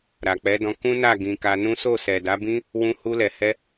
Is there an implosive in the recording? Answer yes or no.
no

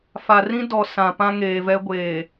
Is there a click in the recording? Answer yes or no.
no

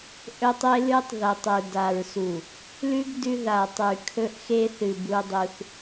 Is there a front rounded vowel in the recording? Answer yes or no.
no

